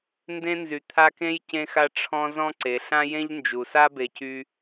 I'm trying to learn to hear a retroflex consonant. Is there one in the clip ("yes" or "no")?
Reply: yes